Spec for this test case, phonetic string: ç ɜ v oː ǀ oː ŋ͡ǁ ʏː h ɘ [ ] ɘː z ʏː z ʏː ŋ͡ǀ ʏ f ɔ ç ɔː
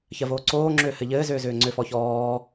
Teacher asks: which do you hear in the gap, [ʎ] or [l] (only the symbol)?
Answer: ʎ